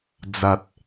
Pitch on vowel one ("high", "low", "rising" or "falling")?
low